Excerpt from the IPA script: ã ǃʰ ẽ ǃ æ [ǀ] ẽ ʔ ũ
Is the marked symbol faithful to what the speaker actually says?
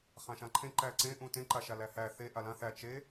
yes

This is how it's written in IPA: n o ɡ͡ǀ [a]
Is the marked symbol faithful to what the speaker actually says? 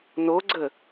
no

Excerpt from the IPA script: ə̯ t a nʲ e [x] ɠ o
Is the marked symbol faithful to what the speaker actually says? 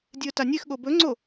yes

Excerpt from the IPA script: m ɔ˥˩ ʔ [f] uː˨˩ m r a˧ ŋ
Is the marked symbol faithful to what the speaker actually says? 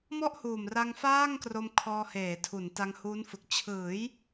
no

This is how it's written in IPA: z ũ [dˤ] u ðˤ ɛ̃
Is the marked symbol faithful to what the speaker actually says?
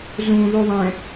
no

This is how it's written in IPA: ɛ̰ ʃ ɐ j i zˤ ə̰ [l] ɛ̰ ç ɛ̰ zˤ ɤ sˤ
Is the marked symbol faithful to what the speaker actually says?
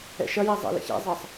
yes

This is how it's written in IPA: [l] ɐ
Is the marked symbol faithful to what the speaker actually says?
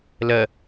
yes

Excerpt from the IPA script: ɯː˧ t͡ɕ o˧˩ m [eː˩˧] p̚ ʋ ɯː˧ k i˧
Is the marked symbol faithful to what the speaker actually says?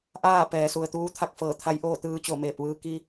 no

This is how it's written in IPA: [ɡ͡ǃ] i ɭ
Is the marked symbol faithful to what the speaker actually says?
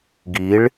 no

